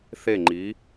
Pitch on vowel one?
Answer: falling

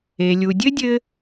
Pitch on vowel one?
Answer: low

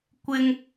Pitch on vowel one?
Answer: high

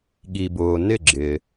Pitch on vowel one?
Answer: low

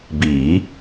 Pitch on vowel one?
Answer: rising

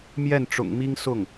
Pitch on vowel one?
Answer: falling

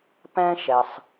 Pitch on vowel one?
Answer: high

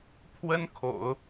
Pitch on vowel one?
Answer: high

